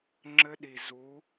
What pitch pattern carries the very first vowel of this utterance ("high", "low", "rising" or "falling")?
high